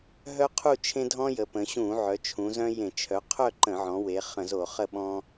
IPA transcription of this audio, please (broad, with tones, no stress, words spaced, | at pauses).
ɦœ˦qʰu˦˨t͡ʃʰẽ˦dʱɔ̃˦ jə˩˧pə̃˩˧ ɕũ˧˩˧ʕœ˩˧ t͡ʃʰũ˩˧ zœ̃˦jẽ˧˩˧ t͡ʃʰœ˩˧qʰœ˦˨ ǃə̃˧˩˧ʕɔ̃˩˧we˩˧ χə̃˧˩˧zo˧˩˧χə˦˨ ɓɔ̃˦